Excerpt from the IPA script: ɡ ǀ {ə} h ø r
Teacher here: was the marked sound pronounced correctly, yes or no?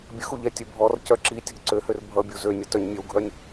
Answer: no